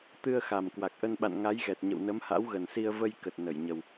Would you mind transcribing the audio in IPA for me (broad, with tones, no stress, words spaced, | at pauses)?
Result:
t̪ɨ˧ə̯xa˨˩m kwa˨˩k̚ʔə˧nɓa̰˧˨n ŋa˨˦jɣɛ˨˩t̚ɲə̰˧˨w nə˨˦mha̰˧˥wɣə˨˩nsi˧ə̯ və˧jkə˨˩t̚ nə˧˩jɲə˨˩w